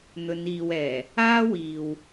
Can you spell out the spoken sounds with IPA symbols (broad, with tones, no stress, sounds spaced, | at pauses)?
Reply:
n̪ ɵ˨˧ n iː˨ w ɛː˨˩ | aː˥ w iː˨ w